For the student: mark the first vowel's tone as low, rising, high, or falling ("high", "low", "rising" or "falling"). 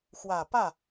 low